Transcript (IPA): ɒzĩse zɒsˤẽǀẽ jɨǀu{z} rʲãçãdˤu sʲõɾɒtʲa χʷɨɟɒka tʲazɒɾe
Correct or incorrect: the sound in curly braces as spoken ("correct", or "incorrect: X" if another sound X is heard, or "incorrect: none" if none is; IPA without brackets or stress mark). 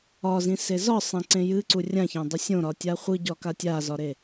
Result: incorrect: none